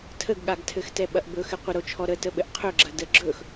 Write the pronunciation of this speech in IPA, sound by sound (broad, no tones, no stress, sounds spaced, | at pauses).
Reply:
tʰ ə ɡ ɠ a ɡ tʰ ɘ x t ɛ ɓ ɐ ʔ b ɵ x ɘ qʷ ə ɾ o t͡ʃʰ ɔ ɾ ə t ə ɓ ɘ ʔ qʰ ɵ ɡ͡ǁ ɐ d ə ɡ͡ǁ ɵ x